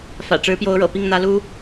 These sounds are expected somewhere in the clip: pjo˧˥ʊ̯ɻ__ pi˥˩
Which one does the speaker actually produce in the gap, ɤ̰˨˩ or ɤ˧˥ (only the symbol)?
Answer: ɤ̰˨˩